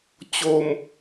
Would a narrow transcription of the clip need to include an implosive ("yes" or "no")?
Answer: no